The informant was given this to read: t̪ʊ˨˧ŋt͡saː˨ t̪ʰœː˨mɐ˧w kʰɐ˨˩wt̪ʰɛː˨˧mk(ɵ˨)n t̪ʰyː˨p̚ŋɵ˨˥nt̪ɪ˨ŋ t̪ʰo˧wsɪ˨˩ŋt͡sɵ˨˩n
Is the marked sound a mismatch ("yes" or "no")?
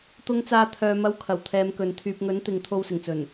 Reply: no